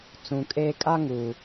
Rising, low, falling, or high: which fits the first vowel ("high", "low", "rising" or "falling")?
low